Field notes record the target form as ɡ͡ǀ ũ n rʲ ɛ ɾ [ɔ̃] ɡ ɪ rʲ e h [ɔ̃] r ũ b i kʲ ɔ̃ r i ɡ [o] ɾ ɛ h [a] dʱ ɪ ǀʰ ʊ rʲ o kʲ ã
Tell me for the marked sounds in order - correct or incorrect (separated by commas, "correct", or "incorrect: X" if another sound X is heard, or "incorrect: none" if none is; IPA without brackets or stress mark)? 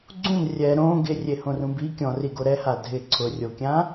incorrect: õ, incorrect: õ, correct, correct